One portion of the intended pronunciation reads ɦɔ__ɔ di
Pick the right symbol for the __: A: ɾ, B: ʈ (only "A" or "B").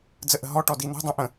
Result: B